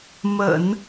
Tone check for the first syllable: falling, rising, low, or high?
low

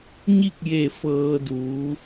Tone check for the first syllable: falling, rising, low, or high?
falling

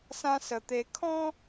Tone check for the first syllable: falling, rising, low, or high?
high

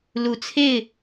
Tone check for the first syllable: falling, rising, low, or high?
low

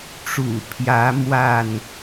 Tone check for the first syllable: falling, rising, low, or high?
low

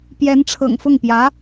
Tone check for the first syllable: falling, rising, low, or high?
rising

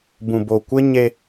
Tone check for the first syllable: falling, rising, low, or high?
low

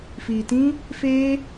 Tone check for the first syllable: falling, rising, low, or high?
low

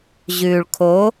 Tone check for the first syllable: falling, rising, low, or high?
low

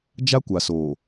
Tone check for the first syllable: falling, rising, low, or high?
high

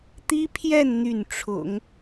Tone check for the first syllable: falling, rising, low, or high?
high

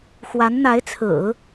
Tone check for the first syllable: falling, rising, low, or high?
rising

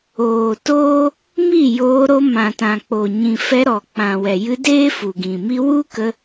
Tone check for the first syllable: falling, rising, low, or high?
low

